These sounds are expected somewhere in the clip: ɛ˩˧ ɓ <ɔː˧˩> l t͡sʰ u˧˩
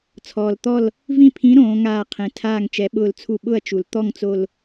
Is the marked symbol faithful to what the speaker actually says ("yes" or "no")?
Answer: no